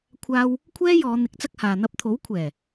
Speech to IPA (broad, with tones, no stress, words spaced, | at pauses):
kʷʰaː˥w | kʷʰɛː˥jɔː˨˧n̪ɪ˨˥k̚ t͡sɐ˥k̚haː˨ n̪ɐ˧p̚t̪ʰo˨˥wkʷʰɛː˨˩